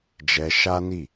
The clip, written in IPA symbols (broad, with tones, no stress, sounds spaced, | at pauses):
d͡ʒ ɛ˧ ʃ a˦ n i˦˨